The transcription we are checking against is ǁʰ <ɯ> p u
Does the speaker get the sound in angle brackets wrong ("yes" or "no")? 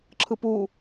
no